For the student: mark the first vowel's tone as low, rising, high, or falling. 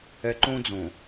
low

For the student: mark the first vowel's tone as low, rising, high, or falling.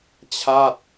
falling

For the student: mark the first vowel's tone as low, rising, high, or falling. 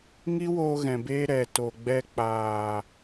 high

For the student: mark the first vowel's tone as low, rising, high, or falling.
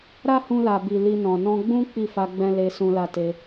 high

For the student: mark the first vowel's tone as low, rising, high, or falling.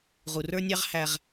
low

